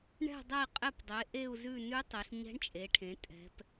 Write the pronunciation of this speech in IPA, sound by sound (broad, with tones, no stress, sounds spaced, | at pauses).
ɳ ɛ̤˦˨ dˤ ɛ˦˨ i̯ qʼ ɛ˦˨ p dˤ e˩˧ ʔ e˦˨ u̯ z ʉ˦˨ n ʉ˦˥ tˤ e˩˧ ɬ ɲ ɛ̤˦˥ ɳ t͡ʃʼ e˩˧ ʈʰ ẽ˩˧ tʼ ɛ̤˩˧ p